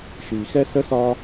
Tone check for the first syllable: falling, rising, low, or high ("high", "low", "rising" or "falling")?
low